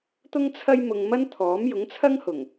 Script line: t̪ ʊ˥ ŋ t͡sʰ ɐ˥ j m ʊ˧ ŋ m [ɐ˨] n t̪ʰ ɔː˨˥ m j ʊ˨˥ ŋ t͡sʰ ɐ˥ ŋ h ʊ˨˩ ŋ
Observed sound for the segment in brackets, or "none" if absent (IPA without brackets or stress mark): ɐ˥